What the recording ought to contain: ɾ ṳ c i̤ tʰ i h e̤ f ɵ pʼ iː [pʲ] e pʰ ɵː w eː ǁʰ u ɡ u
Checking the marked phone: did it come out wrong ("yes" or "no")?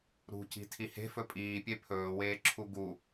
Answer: no